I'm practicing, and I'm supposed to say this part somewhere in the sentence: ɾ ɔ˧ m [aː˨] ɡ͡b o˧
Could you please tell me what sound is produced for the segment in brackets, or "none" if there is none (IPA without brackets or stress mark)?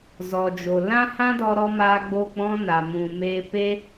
aː˧